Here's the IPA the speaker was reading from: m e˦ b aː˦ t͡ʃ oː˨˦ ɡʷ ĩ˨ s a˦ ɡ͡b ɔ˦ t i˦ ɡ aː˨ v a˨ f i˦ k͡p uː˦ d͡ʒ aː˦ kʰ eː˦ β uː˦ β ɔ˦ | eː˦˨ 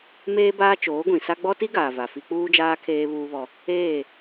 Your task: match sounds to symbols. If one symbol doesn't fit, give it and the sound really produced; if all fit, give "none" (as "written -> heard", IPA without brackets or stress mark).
e˦ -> eː˦